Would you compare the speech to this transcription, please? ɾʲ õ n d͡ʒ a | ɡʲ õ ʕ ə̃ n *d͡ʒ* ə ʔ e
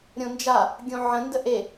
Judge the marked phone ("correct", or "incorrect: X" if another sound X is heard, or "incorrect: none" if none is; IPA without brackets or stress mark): incorrect: d